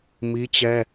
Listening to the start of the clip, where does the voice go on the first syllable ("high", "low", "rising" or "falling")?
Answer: high